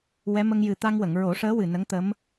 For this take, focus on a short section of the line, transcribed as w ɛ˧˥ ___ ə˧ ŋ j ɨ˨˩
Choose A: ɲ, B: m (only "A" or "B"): B